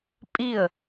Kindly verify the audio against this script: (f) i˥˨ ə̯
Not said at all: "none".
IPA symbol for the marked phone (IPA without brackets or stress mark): pʼ